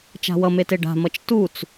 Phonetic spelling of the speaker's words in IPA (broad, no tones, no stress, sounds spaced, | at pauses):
t͡ʃ a̤ w ʌ m e t e ɖ a̤ m ʌ t͡ʃ t u t͡s